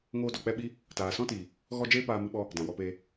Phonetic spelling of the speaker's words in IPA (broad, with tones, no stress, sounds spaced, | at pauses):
ŋ oː˧ d ɔ˨ k͡p ɛ˦ ɓ i˦ | t aː˨ s ɔ̃˦ t iː˨ | ɣ ɔ˦ d͡ʒ eː˦ p aː˧ m ɨ˧ ɓ ɔ˧ | d ã˨ w ɔ˧ p eː˧